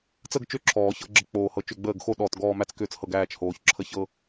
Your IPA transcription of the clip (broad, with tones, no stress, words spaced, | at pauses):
t͡sə˥˧ɡt͡ʃʏ˥˩ ǁʰɔː˨˩˦çɤ˥˧ɡ͡ǁə˥˧ k͡poː˧˩hɤ˧˩ t͡ʃʏ˥˩ɡ͡bəː˥˩ɡ xo˥˧ɗɔː˧˩t ɡɔː˥˧mæ˥˧t͡skʏː˥˩t͡shɤ˥˩ɡ æː˥˩t͡ʃ hoː˨˩˦ç ǁʰə˥˩çɤ˥˧